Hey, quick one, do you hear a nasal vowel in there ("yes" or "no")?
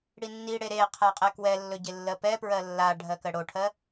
no